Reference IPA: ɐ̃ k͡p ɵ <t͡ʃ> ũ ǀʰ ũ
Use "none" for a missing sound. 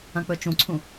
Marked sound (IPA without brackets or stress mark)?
t͡ʃ